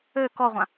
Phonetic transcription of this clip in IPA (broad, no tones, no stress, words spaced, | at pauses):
ø kɔʁʷã